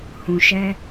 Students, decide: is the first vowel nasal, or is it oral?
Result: nasal